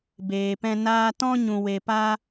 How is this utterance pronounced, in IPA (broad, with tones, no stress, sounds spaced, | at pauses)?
b eː˧ p ɛ̃˦ n aː˦ t ɔ̃˦ ɲ ũ˧ w e˧ p a˦